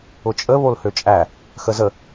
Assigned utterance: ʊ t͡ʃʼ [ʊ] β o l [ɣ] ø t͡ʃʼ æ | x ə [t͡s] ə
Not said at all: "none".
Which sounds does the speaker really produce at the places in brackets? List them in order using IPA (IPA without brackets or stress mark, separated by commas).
ə, h, z